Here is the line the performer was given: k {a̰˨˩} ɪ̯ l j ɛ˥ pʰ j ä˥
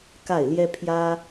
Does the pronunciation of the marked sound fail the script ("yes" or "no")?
yes